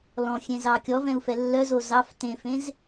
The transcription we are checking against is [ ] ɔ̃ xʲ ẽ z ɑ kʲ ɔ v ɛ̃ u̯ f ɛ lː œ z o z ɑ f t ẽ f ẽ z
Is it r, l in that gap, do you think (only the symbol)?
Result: l